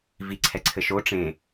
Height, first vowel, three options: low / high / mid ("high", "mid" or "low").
high